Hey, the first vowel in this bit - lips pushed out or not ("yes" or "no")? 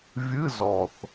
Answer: no